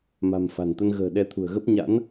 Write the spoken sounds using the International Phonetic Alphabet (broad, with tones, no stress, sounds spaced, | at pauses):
m a̤˨˩ m f a̤˨˩ n t̪ ə˧ n ɣ ə̤ː˨˩ ɗ ɛ˨˦ t̪ʰ ṳ˨˩ ə̯ ɣ ə˦˥ p̚ ɲ a̰˧˥ n